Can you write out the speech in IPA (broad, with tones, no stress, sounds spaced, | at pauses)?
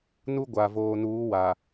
n u˦ ɡʷ aː˨ v oː˨ n uː˨˦ w a˨